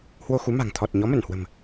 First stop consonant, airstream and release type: aspirated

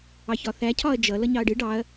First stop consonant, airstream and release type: aspirated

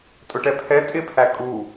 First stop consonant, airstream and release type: ejective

